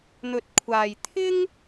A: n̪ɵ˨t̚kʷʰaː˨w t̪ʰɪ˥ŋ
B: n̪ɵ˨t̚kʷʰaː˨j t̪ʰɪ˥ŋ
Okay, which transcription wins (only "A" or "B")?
B